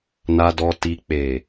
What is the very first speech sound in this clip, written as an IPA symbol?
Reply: n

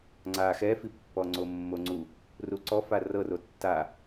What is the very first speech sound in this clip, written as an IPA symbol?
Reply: ŋ͡ǀ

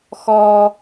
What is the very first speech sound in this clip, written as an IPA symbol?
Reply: x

